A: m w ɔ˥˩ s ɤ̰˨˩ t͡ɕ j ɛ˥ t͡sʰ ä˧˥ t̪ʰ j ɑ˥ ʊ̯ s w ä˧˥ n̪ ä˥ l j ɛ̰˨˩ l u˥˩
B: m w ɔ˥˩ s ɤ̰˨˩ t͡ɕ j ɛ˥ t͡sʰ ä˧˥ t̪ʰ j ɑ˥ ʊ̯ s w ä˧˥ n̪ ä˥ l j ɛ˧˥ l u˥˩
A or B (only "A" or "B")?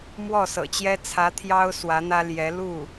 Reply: B